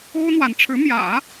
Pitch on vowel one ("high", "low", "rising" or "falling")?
high